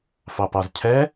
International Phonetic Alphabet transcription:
fɑpɑzcʰɛ

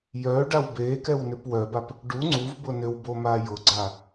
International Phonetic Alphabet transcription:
jœ ɖawbekɛw nʏpwœbap | ɖu ŋ͡ǀuvbʊ nʏwbo majʊɡ͡ǀa

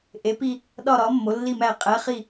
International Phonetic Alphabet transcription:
ʔe˨˦pi˦˨ | ɗɒ˦˨ɾɒ˨˦ mːo˨˦lːi˦˨mæ˦˨ qʼæ˨˦ χi˦˨

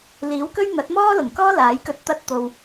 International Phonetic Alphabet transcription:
liː˨˥wkɵ˥ɥ n̪ɐ˨˥t̚mɔː˥lʊ˨˩ŋkɔː˥ laː˨˥jkɵ˧t̚ t̪ɐ˧t̚t̪o˨w

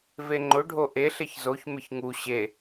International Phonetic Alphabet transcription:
veŋ͡ǃʊ ɖʱoʔe ɬeçzoç mɪçŋu ɕe

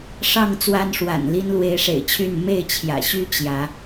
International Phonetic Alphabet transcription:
ʂɑ˥˨ŋt͡swa˦nʂwa̰˨˩nli˦n lwe˨˦ɪ̯ʂḛ˨˩ɪ̯t͡ɕʰy˥˨n me˥˨ɪ̯t͡ɕʰjä̰˨˩ɕy˦ t͡ɕjä˨˦

